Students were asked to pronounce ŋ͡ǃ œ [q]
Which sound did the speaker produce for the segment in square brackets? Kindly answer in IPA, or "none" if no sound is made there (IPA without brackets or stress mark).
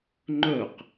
q